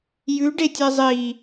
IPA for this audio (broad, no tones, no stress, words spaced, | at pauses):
jʉɖetʲe zˤi